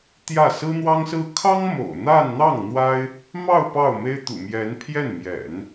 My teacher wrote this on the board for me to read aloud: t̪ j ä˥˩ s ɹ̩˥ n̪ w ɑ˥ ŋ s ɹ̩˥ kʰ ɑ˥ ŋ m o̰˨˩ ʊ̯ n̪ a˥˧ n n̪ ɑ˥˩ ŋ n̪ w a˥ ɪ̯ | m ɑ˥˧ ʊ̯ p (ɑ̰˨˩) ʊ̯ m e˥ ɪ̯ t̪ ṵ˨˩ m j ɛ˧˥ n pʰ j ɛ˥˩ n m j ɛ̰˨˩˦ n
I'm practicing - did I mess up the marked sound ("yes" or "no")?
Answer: yes